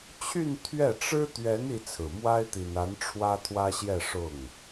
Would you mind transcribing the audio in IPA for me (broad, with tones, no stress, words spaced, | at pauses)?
t͡ɕʰy˥˧n t̪ʰɥɛ˥˩ ʈ͡ʂɻ̩˥ t̪ɥɛ˧˥n i˥t͡sʰɹ̩˨˩ mwa˥ɪ̯t̪i˨˩na˧˥n ʈ͡ʂʰwä˥t̪ʰwä˥ɕjɛ˥˧ ʂʊ˥˩ŋ